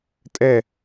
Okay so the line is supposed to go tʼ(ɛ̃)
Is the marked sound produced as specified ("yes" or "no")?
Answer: no